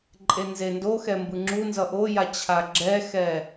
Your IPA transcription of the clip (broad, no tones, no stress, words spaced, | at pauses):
ǃʼenzendoxɛ mbɯŋ͡ǁunzʌ ʔoja t͡ɕʰaɡ͡ǁɛxɛ